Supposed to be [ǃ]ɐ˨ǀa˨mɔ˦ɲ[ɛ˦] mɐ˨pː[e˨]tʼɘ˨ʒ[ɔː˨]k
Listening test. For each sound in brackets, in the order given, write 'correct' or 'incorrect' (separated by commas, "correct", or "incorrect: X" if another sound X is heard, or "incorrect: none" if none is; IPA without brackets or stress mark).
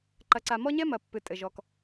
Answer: correct, correct, incorrect: ɨ˨, incorrect: ɔ˨